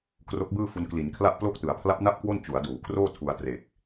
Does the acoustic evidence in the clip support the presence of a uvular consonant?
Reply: no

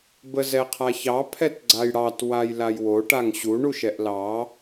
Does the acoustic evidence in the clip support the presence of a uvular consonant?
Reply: yes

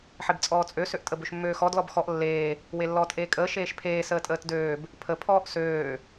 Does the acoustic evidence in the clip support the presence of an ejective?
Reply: yes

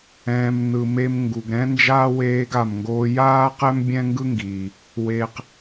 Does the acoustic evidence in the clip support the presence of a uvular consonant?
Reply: yes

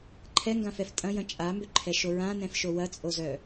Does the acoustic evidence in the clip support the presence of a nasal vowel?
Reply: yes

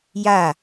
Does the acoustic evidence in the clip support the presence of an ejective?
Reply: no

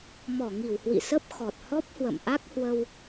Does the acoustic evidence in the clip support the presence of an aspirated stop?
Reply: no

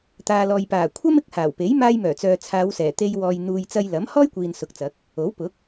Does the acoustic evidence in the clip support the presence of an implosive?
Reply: no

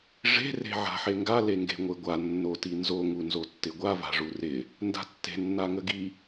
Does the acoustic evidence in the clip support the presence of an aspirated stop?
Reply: no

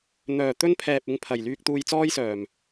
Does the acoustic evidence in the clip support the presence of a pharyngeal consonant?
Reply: no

